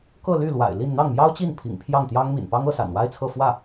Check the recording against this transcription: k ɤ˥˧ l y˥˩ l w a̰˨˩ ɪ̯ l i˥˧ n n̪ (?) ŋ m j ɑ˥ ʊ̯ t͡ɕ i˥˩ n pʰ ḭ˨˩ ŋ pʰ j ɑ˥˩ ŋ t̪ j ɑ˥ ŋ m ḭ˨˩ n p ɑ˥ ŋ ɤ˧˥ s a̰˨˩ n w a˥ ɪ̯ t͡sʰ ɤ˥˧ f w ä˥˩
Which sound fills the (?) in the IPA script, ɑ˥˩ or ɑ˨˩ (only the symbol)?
ɑ˥˩